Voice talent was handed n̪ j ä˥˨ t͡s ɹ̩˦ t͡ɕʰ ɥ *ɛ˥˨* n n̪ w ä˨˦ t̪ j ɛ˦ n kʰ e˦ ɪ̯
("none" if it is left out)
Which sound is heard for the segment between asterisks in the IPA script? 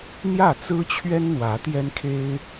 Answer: ɛ˦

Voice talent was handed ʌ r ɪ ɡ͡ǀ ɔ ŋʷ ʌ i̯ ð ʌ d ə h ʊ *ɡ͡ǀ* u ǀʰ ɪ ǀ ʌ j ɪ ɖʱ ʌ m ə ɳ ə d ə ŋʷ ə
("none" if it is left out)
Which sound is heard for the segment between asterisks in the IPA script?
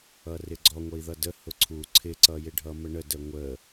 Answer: ǀʰ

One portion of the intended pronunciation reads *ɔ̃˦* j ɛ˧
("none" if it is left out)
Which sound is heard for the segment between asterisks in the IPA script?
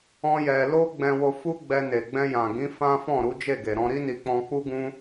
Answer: ɔ̃˦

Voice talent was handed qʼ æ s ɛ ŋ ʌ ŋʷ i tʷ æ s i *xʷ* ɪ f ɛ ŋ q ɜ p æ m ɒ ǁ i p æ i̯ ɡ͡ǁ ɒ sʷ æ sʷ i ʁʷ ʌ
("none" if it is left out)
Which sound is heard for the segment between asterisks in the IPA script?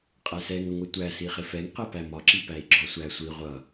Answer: χ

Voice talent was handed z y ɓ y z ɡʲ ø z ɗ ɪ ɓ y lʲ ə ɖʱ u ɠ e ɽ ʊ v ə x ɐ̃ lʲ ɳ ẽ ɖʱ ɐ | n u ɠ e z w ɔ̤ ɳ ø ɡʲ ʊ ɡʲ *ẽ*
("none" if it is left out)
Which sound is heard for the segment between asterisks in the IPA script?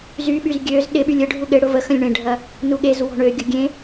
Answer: ẽ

